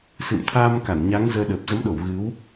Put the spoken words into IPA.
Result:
s ɨ̰˧˨ m t̪ʰ aː˧ m k a˧˩ n ɲ a˨˦ ŋ z əː˧ ɗ əː˨˩ p̚ z ə˨˦ m ɗ o˧˩ w ɣ ɨ˨˦ w

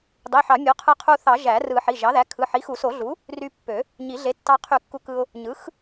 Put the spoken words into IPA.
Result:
dˤ i˩˧˩ ħ ɑ˨˩˦ mʲ o˩˥ qʰ ɯ˧ qʰ u˧ θ ɑ˨˩˦ ʒ æ˨˩˦ r ɯ˨˩˦ ħ i˩˧˩ ʒ ɑ˩˥ ð æ˩˥ kʰ ɯ˩˧˩ ħ i˩˥ x u˨˩˦ s o˨˩˦ ɮ u˩˥ | r y˧ pː ø˨˩˦ | ɲ i˨˩˦ ɮ e˩˥ tː ɑ˧ qʰ y˨˩˦ kː u˧ k ɯ˧ ʊ̯ | ɲ ɯ˩˥ x

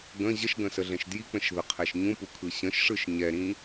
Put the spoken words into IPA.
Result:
ɡ ə̃ ʑ ə ʃ ɡ ə̃ s ə ɮ ɛ̃ ʃ d j i k͡p ə̃ ʃ ð ə qʰ ɛ ʃ ɲ ũ p u kʰ ɯ ɕ ə̃ ʃ ʂ ɯ ʃ ɲ ɛ ɾ ĩ

